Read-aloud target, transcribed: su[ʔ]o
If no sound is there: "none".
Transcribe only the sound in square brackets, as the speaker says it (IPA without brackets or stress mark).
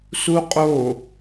qʼ